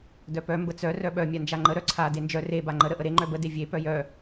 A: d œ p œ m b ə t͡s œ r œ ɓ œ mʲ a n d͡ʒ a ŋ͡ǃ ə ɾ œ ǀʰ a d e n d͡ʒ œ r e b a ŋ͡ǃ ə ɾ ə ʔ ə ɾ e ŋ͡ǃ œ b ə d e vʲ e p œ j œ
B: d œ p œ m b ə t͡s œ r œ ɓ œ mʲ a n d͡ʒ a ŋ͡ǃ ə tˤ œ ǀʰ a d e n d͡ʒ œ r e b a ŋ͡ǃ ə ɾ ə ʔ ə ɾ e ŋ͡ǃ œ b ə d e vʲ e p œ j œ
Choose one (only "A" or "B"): A